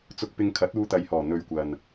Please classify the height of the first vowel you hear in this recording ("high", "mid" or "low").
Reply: high